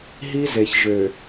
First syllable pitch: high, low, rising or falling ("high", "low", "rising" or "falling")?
high